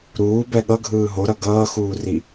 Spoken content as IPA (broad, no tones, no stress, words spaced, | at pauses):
ɾuːbɛ ɠʌɡʱɯː ɦoɾʌ ɡʌːxuːri